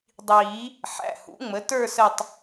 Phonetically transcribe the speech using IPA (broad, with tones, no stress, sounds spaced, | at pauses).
dˤ iː˨˩˦ | ħ æ̰˩˧˩ h ṵ˩˥ ŋ͡m ə˩˥ t ə˞˥˧ s ə˥˧ tˤ